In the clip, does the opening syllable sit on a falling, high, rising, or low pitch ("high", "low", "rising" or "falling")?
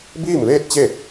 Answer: falling